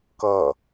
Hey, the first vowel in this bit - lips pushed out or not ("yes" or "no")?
no